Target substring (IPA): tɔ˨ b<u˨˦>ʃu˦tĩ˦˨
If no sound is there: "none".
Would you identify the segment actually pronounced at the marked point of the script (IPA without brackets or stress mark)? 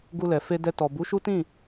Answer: u˨˦